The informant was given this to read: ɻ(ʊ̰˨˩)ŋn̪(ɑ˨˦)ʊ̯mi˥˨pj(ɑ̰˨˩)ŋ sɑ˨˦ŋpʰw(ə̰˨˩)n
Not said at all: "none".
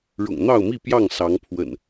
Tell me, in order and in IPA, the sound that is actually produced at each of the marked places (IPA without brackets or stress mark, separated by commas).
ʊ̰˨˩, ɑ˥˨, ɑ˥˨, ə̰˨˩